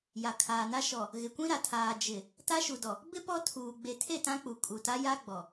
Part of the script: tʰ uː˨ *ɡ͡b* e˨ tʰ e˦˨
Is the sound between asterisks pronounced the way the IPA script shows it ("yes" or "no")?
yes